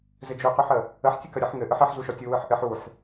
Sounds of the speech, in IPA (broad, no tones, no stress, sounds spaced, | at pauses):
z ɘ d͡ʒ u q u ħ ə | ə ħ tʲ ə k ə ɾʲ ɯ ħ ŋ ɘ ʔ ɯ ħ ɘ ħ z u ʃ ɔ tʲ u w ɯ ħ ʔ ɘ ħ u ħ